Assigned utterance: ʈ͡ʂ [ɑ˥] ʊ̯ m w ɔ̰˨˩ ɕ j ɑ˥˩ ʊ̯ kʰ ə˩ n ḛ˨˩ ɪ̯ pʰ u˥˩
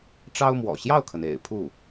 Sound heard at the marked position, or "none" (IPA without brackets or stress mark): ɑ˥